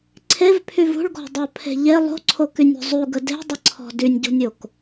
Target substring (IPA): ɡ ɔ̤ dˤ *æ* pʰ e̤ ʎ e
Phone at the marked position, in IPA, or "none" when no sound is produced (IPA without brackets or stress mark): œ